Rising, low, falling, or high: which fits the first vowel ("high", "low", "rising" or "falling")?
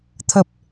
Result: low